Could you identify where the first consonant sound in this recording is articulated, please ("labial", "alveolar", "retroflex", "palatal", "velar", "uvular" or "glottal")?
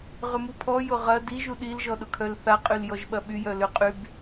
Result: uvular